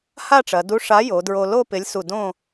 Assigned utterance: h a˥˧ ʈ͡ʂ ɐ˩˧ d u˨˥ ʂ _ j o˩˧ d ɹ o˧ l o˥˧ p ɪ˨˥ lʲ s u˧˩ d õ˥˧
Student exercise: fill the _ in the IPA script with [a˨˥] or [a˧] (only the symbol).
a˨˥